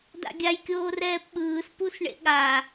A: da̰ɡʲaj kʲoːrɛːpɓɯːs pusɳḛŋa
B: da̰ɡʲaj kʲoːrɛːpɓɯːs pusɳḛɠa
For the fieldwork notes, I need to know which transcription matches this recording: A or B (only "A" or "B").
B